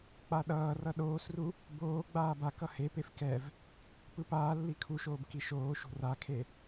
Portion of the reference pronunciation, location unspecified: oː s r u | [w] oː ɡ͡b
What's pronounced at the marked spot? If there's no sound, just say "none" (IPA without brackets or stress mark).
b